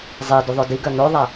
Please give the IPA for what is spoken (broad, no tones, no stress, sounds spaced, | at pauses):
zˤ i d y ðˤ o d i ɡ œ n̪ o ðˤ ɛ